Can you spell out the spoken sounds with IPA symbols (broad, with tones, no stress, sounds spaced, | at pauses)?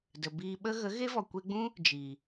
d ə˨ b iː˧ ɓ ə˦ ɣ ə˨˦ ɣ e˦ v ɔ˨ kʷ e˧ ɡ͡b ũ˦ | d͡ʒ iː˨